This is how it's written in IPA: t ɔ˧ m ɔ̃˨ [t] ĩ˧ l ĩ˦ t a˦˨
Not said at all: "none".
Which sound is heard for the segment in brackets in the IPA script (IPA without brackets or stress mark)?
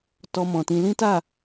t